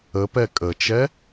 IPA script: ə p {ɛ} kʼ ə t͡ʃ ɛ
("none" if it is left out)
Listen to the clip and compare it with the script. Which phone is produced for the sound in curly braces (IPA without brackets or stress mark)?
ɛ